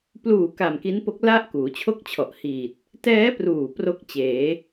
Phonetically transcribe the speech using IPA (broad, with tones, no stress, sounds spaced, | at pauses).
p l uː˨˩ k a˨˩ m k i˦˥ n p o˦˥ k̚ l a˦˥ ʔ k uː˩˦ t͡ɕʰ o˥˩ k̚ t͡ɕʰ ɔ˨˩ ʔ h iː˨˩ t̚ | t ɛː˦˥ p r uː˨˩ p r o˥˩ k̚ t͡ɕ eː˩˦